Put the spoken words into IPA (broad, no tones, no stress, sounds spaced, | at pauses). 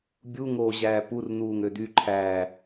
bʲ u ŋ oː ʑ æː p u r n̪ uː ŋ ø d̪ y ǃʰ æ